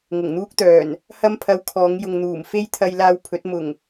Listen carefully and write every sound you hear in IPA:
ŋ ʊ˨˩ ŋ n̪ uː˥ k̚ t̪ œː˨˩ n | h ɐ˥ m pʰ ɐ˧ w kʰ ɔː˨˧ ŋ j ʊ˨ ŋ n̪ uː˨˩ m f e˥ j t̪ʰ ɐ˧ j l aː˧ w pʰ ɵ˨˥ t̚ m ʊ˨˩ ŋ

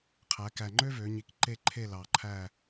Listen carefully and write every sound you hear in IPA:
qʰ æ˩˧ k æ˨˩ ŋ͡ǃ ø˥ v ø˩˧ ɲ i˩˧ k ǃ e˦˨ ǃʰ e˦˨ l ɑ˨˩ ǃʰ æ˦˨

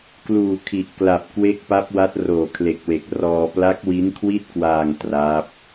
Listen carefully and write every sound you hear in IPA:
k l uː˨˩ kʰ i˨˩ ʔ k l a˨˩ p̚ k w e˦˥ k̚ p a˦˥ p̚ w a˦˥ t̚ r oː˨˩ kʰ l e˨˩ k̚ w e˨˩ k̚ r ɔː˧ p l a˦˥ k̚ w i˦˥ n kʰ w i˥˩ t̚ k w aː˧ ŋ t r a˦˥ p̚

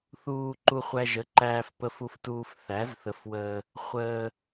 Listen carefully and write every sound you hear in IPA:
θ uː˧ ǃ u˧ χʷ æ˧ ʒ ə˨˥ ǃ æː˧ f p ə˧ f u˧ f t uː˧ f θ æ˨˥ z θ ə˨˥ f w əː˧ | χʷ əː˧

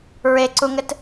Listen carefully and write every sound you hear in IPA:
ɹ e ǀ u ŋ ɘ t

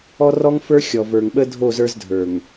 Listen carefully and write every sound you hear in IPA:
ɔ˦ r ɔ˦ ŋ f ə˞˦ xʲ ɔ˨ v ə˞˨ ŋ ɓ ə˦ dʱ o˦˨ z ə˞˦ z dʱ ə˞˨ ŋ

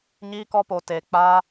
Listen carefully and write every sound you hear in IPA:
ɲ iː˦ k ɔ˦ p o˧ t eː˧ k͡p aː˦

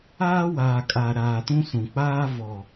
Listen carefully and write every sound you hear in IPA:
aː˦ w aː˨ kʼ a˨ ɾ aː˨ t ũ˦ s ũ˨ k͡p aː˦ v ɔ˨

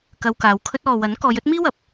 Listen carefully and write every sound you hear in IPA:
k ɐ˧ w k aː˨˧ w kʰ ɵ˥ t̚ ɔː˨ w ɐ˨˥ n k ɔː˨˧ j ɵ˥ t̚ m iː˥ w ɐ˨˥ p̚

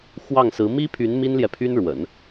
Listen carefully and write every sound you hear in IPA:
x w ɑ˥˩ ŋ s ɹ̩˧˥ m i˥ pʰ y˧˥ n m i˥ n l j ɛ˨ pʰ y˥ n ɻ w ə̰˨˩˦ n

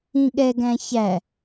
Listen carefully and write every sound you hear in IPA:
ĩ ɠ ɛ ɡ æ̃ ç æ

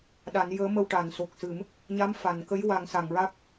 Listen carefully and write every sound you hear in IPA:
ɗ a˨˩˦ n j əː˧˥ m ə˧ w ʈ a˨˩˨ n s o˨˩ k̚ s ɨ˨˩˦ m | ɲ a˧˥ m f a˨˩˨ n k ə˧˥ j w a˨˩˦ ŋ s a˨˩˨ ŋ ɹ a˦˥ k̚

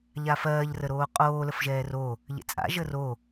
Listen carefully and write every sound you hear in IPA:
ʎ a f ɜː ʎ r ə ɾ oː qʼ oː l ə f ʒ ɛː r o | ʎ ḛ t͡sʼ a̰ ʒ ə r o

